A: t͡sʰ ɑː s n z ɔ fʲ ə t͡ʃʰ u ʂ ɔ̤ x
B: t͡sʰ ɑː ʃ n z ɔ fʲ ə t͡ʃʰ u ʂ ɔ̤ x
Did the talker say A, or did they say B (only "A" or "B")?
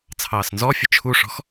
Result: A